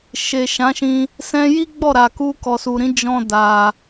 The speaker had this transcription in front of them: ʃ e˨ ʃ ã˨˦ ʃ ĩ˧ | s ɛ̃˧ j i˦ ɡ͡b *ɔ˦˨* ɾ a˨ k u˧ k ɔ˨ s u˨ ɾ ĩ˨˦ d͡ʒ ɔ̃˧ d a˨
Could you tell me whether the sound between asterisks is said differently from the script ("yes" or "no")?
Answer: no